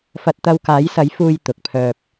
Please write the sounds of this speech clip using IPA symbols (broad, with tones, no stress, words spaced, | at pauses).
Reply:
fɐ˧t̚t̪ɐ˧wkaː˨˥jsɐ˨˥j fuː˧jt̪ʊ˨k̚pʰœː˧p̚